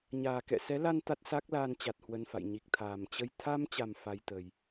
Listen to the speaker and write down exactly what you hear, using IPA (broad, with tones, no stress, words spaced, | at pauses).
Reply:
ɲaː˨˩kɛ̰˧˨sɛ˨˦la˧n t̪a˦˥t̚sa˦˥k̚laː˧nt͡ɕa˨˩t̚ hwə˧nfa̰˧˨j ɲi˨˩k̚t̪ʰaː˨˩mt͡ɕə˧j t̪ʰa˧mt͡ɕa˨˩m fa˧jt̪ə˨˩j